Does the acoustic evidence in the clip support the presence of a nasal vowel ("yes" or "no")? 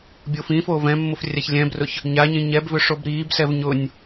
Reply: yes